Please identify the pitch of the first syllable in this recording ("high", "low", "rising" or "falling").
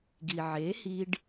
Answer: low